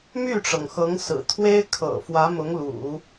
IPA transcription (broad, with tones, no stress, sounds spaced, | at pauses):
m y˥˩ ʈ͡ʂ ɤ˩ ŋ x ɤ˧˥ ŋ s ɹ̩˨˩ t̪ʰ w e˥ ɪ̯ kʰ ɤ̰˨˩ f w ä˧˥ m ʊ˧˥ ŋ l ṵ˨˩˦